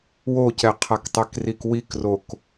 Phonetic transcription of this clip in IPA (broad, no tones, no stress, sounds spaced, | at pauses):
w o c ɛ qʰ a k tˤ ɛ k r i k w i k r o k